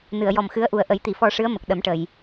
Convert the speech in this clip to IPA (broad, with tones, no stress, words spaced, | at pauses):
nɨ˨˩˨ə̯jɔ˨˩mxɨ˧˥ə̯ʔu˨˩ə̯ ʔə˨˩˦jt̪i˨˩˨fɔ˧ʂɨ˧˥ə̯ mə˨˩k̚ɗə˨˩˦mʈə˨˩˨j